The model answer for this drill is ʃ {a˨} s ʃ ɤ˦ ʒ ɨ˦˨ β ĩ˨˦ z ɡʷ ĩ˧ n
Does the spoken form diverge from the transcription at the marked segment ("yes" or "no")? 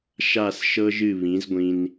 yes